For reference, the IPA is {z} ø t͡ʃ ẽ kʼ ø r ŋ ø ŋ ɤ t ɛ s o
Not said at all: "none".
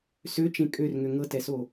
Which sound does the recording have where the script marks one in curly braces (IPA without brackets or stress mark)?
s